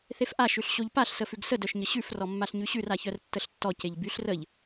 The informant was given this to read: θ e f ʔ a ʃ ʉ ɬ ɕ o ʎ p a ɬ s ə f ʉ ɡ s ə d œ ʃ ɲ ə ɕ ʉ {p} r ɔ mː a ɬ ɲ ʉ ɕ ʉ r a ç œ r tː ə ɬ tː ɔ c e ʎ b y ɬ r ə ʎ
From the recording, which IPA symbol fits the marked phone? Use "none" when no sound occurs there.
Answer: f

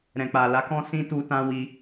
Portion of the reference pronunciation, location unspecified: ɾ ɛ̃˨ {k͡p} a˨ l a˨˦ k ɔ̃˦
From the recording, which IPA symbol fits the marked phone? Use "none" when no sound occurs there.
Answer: k͡p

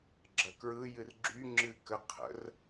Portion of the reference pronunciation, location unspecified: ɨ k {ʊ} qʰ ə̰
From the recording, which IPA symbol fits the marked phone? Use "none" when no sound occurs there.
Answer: ə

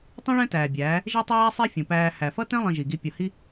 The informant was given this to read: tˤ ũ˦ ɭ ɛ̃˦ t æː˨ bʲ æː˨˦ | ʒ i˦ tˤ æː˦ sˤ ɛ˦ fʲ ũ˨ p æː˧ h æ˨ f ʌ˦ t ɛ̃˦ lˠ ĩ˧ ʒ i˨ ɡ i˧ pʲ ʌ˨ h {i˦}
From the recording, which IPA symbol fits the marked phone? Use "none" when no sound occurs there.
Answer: i˦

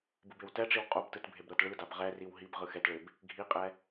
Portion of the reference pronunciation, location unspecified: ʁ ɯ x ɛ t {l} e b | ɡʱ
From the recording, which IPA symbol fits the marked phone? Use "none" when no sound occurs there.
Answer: ɭ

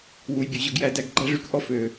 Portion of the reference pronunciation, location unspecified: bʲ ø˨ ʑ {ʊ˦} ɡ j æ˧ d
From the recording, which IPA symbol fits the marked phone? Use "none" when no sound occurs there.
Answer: ʊ˧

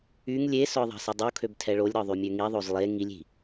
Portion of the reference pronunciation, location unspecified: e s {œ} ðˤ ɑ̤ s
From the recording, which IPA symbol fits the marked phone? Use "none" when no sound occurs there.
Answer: œ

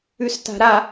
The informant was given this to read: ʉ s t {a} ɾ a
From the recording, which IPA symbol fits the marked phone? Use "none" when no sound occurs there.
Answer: a̤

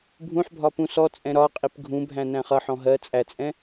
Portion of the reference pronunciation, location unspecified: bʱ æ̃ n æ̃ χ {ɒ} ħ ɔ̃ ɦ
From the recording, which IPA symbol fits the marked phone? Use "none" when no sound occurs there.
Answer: ʌ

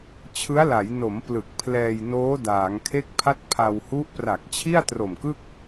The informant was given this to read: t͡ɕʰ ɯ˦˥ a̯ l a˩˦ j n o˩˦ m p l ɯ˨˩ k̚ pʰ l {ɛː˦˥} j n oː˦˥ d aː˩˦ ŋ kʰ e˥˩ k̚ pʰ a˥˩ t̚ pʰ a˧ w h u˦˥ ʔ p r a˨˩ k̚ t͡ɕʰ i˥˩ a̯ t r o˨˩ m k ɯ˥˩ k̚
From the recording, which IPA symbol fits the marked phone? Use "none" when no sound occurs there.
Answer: ɛː˧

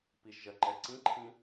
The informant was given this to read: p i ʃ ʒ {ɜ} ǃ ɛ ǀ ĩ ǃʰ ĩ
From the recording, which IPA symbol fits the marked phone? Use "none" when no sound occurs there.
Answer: ɜ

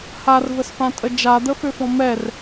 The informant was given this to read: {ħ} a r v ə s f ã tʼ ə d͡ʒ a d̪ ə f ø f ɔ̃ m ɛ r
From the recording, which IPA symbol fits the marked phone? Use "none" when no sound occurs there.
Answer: h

